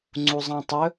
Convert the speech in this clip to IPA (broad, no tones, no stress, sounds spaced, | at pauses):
ŋ͡ǀ u zˤ ã tˤ ɵ